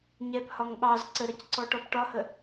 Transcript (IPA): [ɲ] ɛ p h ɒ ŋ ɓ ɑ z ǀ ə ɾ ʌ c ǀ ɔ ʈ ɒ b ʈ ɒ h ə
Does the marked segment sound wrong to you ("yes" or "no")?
no